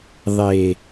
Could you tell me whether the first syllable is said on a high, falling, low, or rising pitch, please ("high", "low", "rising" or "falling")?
low